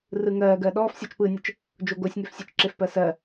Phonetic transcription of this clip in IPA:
r ɯ ŋ ɜː ɡ ɜ ɗ ɔː f sʲ ɔ t͡ʃ p ɯː nʲ ə t͡ʃ | d͡ʒ o ɡ o sʲ ŋ e f sʲ e t͡ʃ ǁ e f p ɜ s ɜ

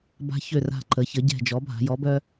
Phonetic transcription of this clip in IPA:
b a̤˦ ç ø˦˨ r a̤˦˨ ǃ ə˩˧ ç ə˩˥ ɟ ɛ̤˦˨ d͡ʒ ɔ˩˥ bʱ a̤˩˧ j ɔ˩˥ b œ˦

